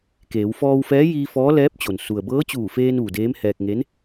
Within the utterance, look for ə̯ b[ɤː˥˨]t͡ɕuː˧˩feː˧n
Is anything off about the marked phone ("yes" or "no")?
yes